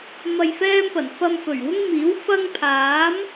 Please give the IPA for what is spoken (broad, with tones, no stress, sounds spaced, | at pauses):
m ɐ˧ j f ɛː˥ m p ɐ˨˩ n f ɐ˧ m f ɵ˨˩ ɥ w ʊ˥ ŋ m iː˨˥ w f ɐ˥ ŋ pʰ aː˨˥ m